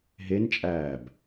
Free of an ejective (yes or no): no